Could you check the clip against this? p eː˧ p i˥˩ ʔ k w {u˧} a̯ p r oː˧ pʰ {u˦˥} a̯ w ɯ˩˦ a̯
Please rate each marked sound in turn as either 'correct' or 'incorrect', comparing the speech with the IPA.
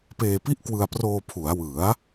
incorrect: ɯ˧, incorrect: u˩˦

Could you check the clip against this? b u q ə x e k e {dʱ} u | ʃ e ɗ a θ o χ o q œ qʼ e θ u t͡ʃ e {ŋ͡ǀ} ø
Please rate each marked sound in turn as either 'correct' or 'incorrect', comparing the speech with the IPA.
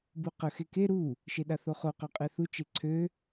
incorrect: ɾ, incorrect: ǀʰ

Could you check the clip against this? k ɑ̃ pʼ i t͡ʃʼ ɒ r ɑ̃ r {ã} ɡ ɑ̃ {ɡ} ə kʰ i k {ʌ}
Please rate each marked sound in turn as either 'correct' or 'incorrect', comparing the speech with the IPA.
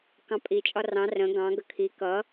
incorrect: ə̃, correct, correct

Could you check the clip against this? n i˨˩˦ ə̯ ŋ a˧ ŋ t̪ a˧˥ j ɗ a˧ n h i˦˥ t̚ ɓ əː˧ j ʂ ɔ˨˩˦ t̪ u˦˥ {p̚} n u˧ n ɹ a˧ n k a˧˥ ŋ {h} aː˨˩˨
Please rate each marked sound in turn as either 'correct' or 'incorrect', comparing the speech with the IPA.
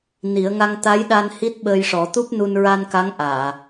correct, incorrect: ʔ

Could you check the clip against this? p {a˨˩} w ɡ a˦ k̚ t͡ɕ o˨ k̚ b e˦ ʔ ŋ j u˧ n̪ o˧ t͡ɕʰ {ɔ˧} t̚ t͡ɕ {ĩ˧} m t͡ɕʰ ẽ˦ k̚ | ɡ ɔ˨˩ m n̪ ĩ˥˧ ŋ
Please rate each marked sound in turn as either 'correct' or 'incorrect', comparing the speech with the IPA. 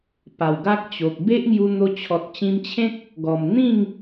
correct, incorrect: ɔ˨, correct

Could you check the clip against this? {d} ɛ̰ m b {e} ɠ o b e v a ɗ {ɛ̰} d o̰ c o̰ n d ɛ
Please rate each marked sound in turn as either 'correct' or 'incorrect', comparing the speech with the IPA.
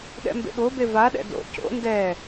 incorrect: ɗ, incorrect: ḛ, correct

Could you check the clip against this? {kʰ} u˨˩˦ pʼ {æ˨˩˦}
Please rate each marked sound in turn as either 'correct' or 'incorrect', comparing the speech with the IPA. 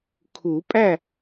correct, incorrect: æ˥˨

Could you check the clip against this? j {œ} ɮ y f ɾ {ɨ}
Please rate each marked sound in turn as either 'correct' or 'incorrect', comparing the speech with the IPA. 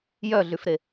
correct, incorrect: e

